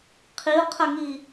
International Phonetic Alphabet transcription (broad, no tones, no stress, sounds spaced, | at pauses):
qʰ i ʊ̯ qʰ ɐ ŋ i